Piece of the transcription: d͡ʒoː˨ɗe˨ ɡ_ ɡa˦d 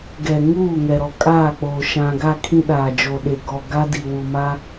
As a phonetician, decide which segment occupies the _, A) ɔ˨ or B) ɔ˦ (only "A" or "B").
A